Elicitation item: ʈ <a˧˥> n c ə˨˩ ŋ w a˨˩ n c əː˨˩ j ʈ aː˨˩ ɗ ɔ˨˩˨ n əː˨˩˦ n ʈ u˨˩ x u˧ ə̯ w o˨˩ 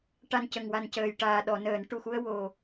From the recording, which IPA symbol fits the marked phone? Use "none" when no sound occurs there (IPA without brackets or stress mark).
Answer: a˨˩